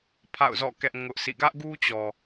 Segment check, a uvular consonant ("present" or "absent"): absent